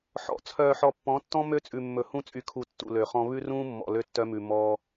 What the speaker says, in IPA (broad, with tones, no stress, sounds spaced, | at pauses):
ħ ɔ̰˨ t͡sʰ œː˨ ħ ɔ˨ pː ɔ̃˨˦ tː ɔ̃˦ m ø˦ t͡sʼ ʉ˨ mː ɵ˨ h ũ˦ t͡sʼ y˨ kʰ u˨ tː ṵ˨ l ø˨ χ ɔ̃˦ β ʉ˦ r ũː˦ mː ɔ̰˨ l ø˦ tː œ˦ m ʉ˨ m ɔː˦